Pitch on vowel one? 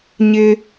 high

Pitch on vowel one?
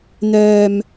low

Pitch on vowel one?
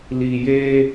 low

